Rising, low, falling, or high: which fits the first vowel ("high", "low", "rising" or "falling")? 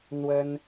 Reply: high